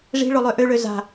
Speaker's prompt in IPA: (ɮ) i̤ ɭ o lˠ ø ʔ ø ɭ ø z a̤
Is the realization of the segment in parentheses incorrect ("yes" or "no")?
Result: yes